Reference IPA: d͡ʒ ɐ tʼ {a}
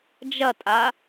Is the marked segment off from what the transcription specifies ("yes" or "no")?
no